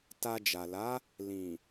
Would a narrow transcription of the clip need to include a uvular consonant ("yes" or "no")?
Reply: no